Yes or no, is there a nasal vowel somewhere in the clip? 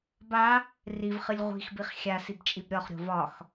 no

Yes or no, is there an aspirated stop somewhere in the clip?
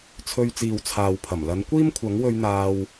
yes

